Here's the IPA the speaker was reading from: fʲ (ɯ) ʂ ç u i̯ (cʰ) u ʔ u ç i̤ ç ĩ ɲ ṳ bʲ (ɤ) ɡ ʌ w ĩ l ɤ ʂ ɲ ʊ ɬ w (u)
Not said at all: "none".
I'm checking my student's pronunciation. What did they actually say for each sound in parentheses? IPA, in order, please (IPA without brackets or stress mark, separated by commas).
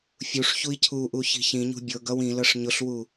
u, cʰ, ɤ, u